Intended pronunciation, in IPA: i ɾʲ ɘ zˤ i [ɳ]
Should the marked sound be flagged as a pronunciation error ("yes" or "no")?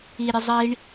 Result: no